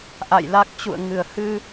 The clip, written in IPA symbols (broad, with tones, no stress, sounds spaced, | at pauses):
ʔ a̰˧˨ j l a˦˥ k̚ t͡ɕ ṵ˧˨ ə̯ ŋ ɨ˧˩ ə̯ h ɨ˧